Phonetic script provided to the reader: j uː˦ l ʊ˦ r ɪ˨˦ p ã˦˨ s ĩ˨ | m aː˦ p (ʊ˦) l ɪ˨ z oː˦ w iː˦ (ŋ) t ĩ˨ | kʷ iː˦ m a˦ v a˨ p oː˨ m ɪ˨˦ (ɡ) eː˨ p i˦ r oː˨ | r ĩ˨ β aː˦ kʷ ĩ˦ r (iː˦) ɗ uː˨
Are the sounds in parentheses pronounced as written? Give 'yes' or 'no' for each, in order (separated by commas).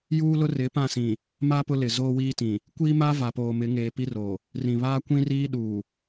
yes, no, no, yes